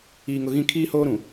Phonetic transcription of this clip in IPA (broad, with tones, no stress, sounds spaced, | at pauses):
iː˨ ŋ ʊ˨ ɣ ĩ˦ kʰ iː˦ h oː˦ ɾ ũ˨